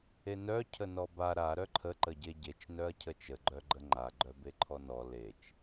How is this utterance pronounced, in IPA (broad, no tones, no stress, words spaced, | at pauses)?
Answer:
enœ cʰənɔba ɾa ɾœǃʰə ǃəɟeɟet͡ʃ nœɐ̯cʰət͡ʃə ɡ͡ǃœɡ͡ǃəŋ͡ǃa ɡ͡ǃœbeǃʰɔnɔ let͡ʃ